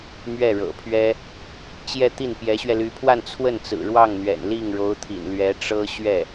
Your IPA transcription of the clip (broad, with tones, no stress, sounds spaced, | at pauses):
m ɥ ɛ˥˩ ɻ ɤ̰˨˩ pʰ ɥ ɛ˥ | t͡ɕ j ɛ˥˧ t̪ i˥˩ n p j ɛ˧˥ ɕ ɥ ɛ˧ l y˧˥ pʰ w a˥˧ n t͡sʰ w ə˥˩ n t͡s ɹ̩˨˩ ɻ w ɑ˥˩ ŋ n̪ ɥ ɛ̰˨˩ n l i˥˩ ŋ ɻ o˧˥ ʊ̯ t̪ʰ ḭ˨˩ n l ɥ ɛ˧˥ ʈ͡ʂ ɤ˥ ɕ ɥ ɛ˥˩